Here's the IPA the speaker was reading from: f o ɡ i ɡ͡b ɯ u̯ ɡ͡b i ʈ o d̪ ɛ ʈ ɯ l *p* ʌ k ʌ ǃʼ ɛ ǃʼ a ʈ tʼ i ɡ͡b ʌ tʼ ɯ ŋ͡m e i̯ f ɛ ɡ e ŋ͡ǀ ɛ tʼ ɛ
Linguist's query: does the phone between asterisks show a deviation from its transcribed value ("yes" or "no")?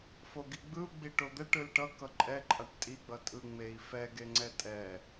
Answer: yes